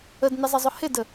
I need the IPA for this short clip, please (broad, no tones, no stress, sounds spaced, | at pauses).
ə d n ɪ zˤ ɪ zˤ ʊ h ɪ d ə